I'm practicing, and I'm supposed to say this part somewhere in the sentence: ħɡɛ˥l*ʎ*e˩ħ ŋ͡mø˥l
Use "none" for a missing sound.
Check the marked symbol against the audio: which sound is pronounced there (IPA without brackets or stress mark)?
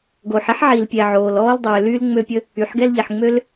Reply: ʎ